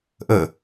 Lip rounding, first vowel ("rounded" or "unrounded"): rounded